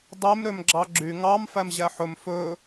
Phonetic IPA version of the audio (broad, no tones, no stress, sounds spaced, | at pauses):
dˤ e m ɾ ø m ɡ͡ǁ ɑ ɡ͡ǁ y ŋ ɑ m f æ m ʑ æ ħ ɵ m f ɵ